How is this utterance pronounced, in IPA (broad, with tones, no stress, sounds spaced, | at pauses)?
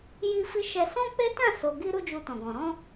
j i˧ f i˧ ʃ ɛ˧ s ɔ̃˦ k͡p e˦ t ã˦˨ s o˨ ɡ i˧ ɾ u˦ d͡ʒ u˧ t ɔ̃˨ ɡ ɔ̃˨ ɾ ɔ̃˧